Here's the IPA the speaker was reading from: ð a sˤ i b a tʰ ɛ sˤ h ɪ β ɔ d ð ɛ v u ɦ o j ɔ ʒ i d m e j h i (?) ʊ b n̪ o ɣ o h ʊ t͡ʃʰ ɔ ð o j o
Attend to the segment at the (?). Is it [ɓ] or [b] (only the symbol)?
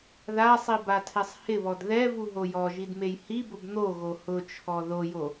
b